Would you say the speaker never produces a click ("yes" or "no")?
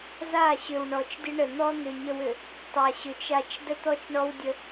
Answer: yes